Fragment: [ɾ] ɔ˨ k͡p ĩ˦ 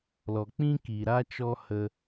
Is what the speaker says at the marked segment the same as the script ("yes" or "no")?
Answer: no